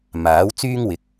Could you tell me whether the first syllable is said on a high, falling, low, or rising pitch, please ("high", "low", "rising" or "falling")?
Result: rising